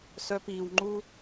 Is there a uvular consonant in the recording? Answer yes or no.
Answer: no